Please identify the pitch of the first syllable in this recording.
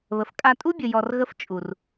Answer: low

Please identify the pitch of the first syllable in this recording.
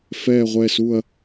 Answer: falling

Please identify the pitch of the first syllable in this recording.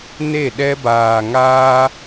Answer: falling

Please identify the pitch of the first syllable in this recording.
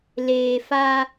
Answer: low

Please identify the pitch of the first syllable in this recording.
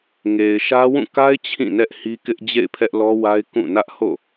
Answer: low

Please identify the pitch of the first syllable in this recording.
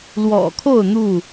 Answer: low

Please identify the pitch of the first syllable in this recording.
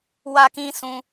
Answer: high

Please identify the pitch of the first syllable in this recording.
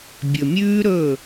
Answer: low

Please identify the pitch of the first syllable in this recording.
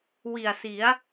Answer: low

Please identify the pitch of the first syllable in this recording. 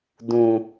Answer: low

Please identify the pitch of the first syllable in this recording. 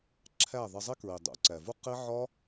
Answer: falling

